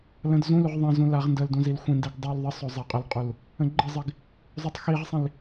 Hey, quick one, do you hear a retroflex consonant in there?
no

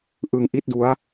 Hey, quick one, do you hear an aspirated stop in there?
no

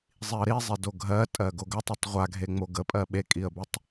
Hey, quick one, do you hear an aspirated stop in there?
no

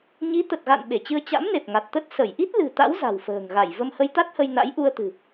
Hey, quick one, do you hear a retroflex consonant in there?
no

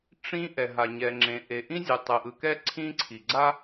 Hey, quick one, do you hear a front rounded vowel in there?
no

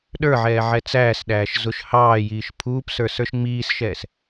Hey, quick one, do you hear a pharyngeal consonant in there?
yes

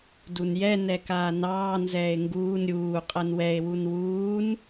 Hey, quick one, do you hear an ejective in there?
yes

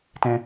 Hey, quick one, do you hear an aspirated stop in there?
no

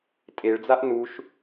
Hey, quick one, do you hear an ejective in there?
yes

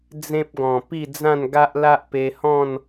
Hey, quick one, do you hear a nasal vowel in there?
yes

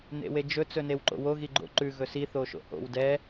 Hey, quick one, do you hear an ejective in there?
no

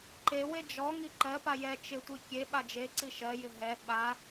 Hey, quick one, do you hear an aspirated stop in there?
no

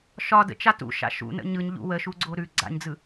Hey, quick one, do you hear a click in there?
yes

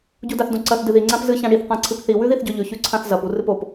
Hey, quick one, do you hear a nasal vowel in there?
yes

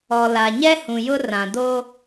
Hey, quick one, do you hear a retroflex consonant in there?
no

